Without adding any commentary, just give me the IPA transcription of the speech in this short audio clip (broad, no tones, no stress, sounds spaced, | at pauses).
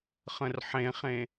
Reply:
χ ə̃ r ħ ẽ χ ẽ